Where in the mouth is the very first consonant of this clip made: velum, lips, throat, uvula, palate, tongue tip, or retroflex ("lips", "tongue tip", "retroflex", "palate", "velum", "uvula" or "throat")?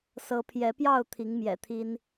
tongue tip